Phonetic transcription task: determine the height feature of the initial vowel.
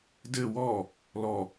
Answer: mid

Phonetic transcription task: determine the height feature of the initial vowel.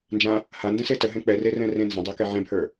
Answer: low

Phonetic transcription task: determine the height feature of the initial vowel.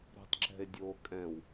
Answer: mid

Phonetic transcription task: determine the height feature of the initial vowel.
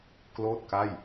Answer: mid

